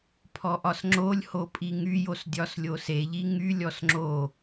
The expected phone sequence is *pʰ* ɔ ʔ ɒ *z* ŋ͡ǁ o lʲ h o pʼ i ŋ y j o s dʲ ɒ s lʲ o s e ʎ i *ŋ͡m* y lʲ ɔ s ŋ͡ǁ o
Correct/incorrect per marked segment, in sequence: correct, incorrect, incorrect

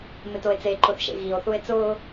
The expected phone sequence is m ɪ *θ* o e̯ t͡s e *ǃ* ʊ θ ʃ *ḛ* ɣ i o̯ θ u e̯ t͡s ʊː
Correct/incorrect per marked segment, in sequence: incorrect, correct, correct

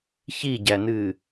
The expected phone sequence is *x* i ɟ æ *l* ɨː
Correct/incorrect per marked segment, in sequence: incorrect, incorrect

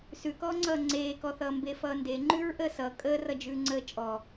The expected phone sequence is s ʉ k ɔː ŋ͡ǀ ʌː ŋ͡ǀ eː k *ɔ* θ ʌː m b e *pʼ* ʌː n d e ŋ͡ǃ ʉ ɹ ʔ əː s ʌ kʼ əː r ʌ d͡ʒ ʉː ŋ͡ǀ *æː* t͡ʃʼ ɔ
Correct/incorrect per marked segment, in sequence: correct, incorrect, incorrect

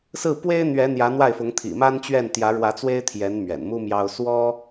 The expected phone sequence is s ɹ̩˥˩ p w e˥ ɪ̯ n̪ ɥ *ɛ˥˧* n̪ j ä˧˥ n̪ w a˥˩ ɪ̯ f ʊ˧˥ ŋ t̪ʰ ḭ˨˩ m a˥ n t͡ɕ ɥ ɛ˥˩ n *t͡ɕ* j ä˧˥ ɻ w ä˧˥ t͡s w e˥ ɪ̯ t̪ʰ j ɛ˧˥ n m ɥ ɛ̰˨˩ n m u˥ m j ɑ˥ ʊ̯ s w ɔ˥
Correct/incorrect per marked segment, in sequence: incorrect, incorrect

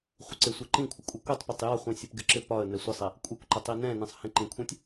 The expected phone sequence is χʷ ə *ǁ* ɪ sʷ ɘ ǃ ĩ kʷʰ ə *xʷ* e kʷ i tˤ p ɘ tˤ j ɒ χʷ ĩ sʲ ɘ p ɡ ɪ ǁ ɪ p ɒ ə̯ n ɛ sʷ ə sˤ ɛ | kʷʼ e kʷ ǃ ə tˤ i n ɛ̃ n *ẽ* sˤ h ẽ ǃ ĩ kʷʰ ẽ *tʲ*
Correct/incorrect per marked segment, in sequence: incorrect, incorrect, correct, correct

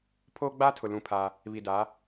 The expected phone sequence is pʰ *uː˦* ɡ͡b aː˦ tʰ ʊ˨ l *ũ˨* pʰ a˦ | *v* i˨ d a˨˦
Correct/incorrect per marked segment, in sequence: incorrect, incorrect, incorrect

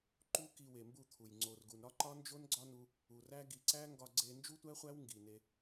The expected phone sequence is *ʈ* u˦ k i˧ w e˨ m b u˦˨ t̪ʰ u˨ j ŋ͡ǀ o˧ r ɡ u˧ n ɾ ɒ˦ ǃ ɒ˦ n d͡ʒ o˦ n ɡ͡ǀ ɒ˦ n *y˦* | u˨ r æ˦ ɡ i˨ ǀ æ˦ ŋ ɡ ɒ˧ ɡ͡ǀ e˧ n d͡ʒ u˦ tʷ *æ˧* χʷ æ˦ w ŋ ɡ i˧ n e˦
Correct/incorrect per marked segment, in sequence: incorrect, incorrect, incorrect

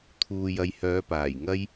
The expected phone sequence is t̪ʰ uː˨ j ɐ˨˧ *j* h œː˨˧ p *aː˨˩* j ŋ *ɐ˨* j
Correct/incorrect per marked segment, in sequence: correct, correct, incorrect

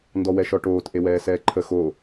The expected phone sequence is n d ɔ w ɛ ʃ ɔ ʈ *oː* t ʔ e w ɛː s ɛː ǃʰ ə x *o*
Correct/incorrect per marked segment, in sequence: correct, correct

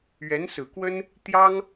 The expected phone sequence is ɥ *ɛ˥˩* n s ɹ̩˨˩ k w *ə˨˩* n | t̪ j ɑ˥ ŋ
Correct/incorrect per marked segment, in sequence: incorrect, incorrect

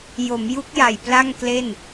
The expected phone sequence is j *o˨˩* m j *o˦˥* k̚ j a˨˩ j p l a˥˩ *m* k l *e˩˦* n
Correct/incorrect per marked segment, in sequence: incorrect, incorrect, incorrect, incorrect

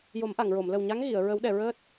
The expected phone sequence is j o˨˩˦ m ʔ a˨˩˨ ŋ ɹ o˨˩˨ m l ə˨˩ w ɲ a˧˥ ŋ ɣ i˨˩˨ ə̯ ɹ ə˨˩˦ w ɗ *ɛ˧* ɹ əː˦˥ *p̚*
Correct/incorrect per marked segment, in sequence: incorrect, incorrect

